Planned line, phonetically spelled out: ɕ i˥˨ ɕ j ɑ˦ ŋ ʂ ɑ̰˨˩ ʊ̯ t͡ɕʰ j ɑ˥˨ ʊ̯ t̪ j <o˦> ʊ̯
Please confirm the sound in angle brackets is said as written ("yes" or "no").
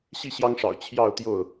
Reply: no